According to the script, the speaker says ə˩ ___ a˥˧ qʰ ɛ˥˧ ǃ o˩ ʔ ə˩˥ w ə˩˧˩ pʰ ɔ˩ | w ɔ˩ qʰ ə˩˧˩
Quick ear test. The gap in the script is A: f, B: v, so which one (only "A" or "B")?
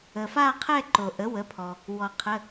A